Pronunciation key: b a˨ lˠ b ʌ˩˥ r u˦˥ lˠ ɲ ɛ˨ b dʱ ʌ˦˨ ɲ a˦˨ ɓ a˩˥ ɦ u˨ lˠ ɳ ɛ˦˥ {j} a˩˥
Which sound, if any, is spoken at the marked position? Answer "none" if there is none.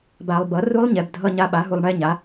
ɲ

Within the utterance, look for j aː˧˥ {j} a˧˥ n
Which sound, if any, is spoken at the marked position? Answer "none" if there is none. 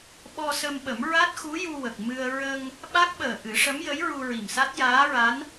ɹ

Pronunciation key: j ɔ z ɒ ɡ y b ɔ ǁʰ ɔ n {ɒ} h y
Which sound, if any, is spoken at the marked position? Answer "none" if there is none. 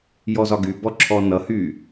ʌ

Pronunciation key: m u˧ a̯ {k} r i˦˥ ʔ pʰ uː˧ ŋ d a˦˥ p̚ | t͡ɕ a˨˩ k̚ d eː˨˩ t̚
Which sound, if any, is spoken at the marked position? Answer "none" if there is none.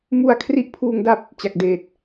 kʰ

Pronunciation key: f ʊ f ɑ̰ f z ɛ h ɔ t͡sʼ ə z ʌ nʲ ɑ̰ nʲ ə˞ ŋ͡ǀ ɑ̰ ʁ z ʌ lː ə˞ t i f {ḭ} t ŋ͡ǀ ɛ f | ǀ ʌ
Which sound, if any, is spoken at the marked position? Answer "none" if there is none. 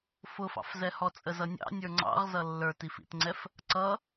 ḭ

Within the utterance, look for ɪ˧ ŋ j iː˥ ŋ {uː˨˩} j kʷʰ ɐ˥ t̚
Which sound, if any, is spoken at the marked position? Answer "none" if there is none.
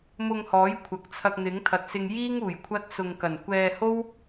uː˨˩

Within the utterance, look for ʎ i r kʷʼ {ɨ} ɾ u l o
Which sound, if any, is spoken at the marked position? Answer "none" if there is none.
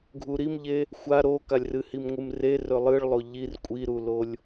i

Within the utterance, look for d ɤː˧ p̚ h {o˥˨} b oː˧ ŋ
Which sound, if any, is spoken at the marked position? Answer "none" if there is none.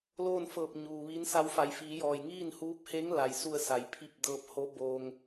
o˧˥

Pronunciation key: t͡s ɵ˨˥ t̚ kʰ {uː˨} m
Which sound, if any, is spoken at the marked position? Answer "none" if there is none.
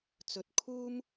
uː˥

